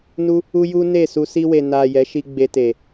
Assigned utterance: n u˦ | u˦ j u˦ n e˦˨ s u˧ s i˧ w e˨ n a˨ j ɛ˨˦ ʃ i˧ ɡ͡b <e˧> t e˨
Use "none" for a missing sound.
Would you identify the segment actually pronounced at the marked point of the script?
e˧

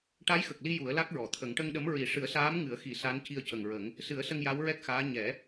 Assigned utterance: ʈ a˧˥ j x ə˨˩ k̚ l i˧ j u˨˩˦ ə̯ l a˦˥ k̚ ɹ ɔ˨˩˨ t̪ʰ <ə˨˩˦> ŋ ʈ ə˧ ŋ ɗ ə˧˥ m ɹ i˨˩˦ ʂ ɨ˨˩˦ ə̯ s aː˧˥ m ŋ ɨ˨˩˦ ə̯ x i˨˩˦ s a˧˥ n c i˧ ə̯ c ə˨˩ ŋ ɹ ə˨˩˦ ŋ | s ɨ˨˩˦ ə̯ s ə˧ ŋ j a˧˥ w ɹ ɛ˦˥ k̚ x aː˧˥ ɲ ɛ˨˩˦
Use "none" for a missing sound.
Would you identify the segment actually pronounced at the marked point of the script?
ə˨˩˦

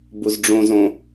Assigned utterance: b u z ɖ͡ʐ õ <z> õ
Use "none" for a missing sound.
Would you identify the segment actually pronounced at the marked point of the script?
z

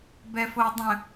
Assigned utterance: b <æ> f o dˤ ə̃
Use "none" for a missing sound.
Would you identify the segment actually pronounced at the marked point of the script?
ɛ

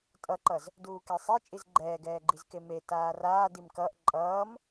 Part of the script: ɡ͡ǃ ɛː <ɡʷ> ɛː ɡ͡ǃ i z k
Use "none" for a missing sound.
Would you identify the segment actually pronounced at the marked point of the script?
ɡ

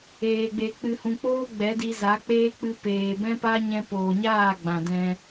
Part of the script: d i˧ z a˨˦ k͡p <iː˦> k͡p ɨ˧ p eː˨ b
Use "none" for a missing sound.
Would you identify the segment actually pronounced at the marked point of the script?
eː˦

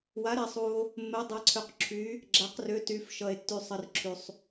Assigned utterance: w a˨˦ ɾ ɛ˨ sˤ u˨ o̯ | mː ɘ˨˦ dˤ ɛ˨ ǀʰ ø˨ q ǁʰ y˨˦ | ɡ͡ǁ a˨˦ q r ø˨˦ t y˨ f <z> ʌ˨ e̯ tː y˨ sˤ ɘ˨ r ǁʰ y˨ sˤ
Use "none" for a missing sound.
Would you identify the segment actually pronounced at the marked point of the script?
ʃ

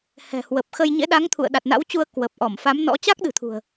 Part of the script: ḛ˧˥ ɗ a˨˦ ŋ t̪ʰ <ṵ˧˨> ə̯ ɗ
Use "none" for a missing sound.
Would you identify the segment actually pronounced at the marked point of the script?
ṵ˧˨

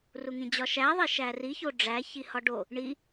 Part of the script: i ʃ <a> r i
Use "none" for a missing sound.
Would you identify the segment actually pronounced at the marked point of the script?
æ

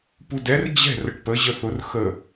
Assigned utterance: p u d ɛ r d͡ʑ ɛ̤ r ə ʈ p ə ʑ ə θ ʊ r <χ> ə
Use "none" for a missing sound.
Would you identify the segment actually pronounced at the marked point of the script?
x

